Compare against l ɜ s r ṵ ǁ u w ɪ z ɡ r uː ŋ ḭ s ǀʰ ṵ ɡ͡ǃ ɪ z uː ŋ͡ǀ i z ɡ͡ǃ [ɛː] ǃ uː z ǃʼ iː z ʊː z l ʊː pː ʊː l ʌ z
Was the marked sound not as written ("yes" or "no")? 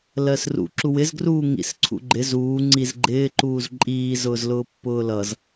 yes